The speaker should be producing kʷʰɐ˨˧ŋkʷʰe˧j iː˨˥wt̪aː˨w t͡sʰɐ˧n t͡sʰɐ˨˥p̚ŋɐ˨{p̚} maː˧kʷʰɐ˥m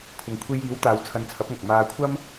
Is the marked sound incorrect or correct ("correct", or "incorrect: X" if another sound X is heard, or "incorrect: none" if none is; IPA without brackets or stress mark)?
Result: incorrect: k̚